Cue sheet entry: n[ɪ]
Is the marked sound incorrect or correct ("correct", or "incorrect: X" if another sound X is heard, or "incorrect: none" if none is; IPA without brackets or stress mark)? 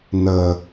incorrect: ə